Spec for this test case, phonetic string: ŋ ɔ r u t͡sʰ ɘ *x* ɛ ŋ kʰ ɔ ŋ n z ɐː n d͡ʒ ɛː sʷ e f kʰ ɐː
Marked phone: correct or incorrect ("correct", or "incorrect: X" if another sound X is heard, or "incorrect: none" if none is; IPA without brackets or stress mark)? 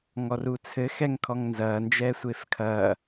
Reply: correct